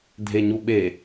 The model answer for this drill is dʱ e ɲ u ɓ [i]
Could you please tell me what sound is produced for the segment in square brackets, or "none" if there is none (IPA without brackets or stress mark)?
e